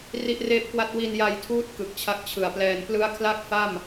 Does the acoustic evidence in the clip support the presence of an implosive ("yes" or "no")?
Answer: no